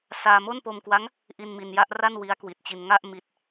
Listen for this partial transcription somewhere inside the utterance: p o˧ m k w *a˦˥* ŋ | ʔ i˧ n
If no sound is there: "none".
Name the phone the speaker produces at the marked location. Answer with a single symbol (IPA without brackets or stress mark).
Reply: a˦˥